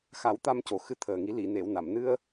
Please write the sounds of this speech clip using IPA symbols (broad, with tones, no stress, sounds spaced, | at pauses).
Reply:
x a˨˩˦ w t̪ a˧ m c o˨˩ x ɨ˧ t̪ʰ əː˨˩ ŋ i˨˩˦ l i˨˩˨ n e˨˩˨ w n a˨˩˨ m n ɨ˧ ə̯